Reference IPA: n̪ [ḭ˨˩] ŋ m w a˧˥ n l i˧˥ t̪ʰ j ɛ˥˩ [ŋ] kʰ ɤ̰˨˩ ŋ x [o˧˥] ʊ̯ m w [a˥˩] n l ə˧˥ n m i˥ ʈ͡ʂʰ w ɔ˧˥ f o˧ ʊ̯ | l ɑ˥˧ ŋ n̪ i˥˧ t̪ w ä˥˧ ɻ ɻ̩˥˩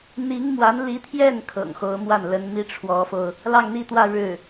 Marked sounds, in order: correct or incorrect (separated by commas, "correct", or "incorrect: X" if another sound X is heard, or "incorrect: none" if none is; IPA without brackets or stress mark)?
incorrect: i˧˥, incorrect: n, correct, correct